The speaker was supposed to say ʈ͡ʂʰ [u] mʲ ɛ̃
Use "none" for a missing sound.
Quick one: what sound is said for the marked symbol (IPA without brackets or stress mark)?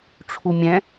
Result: u